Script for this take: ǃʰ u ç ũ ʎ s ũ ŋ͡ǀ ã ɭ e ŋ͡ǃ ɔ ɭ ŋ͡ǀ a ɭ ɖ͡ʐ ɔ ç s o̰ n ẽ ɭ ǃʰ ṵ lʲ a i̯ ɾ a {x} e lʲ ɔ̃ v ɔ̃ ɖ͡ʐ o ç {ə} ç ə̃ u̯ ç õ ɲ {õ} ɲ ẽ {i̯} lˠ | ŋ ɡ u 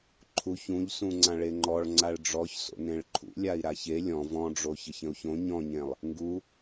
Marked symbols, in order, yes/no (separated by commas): no, yes, no, no